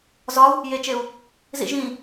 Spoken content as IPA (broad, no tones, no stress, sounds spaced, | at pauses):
z ɒ u̯ | j e t͡ʃ e u̯ | z ḭ ʒ ĩ